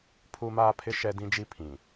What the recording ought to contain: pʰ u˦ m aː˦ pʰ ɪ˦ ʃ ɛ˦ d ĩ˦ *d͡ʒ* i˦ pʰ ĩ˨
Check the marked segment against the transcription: correct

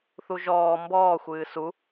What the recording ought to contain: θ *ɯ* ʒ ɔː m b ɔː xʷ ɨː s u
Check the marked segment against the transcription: incorrect: u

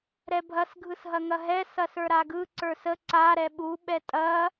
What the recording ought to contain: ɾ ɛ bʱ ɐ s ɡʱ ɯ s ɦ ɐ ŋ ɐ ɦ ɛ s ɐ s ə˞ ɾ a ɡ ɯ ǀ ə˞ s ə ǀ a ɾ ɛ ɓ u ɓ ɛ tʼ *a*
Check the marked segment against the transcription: incorrect: ɐ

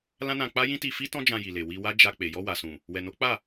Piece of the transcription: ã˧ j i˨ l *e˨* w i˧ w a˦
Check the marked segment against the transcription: correct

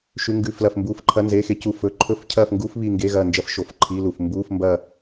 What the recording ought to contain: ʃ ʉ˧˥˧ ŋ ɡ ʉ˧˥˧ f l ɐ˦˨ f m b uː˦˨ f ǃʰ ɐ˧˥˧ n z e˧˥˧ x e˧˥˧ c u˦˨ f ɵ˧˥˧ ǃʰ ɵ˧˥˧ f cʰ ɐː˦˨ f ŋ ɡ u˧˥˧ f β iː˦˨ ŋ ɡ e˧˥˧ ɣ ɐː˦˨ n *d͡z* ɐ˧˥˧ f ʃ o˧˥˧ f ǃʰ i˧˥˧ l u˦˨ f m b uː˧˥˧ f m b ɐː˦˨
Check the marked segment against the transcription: incorrect: d͡ʒ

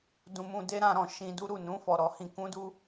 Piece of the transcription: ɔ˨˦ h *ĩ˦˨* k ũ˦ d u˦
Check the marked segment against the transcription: incorrect: ĩ˧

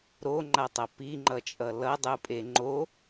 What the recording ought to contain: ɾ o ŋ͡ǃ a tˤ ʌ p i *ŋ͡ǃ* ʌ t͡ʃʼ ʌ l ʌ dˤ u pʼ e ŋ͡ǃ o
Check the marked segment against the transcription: correct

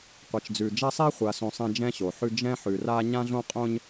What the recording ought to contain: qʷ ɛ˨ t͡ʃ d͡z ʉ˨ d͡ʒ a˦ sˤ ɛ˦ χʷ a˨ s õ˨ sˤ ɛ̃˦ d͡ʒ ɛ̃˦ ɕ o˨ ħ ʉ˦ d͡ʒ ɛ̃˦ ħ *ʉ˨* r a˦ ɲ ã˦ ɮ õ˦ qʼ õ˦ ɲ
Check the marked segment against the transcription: correct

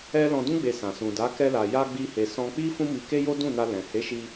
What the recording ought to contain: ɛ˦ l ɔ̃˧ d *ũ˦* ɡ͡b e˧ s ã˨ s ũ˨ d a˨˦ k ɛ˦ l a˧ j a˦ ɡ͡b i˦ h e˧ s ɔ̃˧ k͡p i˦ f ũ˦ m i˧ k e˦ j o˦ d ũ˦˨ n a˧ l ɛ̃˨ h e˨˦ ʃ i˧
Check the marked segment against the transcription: correct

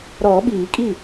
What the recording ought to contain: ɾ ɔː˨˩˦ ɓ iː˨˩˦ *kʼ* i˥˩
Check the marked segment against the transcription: correct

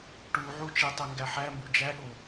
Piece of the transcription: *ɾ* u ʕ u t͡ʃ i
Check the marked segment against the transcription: incorrect: ʈ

